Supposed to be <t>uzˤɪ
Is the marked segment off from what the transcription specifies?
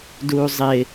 yes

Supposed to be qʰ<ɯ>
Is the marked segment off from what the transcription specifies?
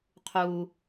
yes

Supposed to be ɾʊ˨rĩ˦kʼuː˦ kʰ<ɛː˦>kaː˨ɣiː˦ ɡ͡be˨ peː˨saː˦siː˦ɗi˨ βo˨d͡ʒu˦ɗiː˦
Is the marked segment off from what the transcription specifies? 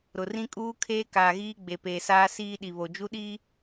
yes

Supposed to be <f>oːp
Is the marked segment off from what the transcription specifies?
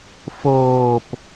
no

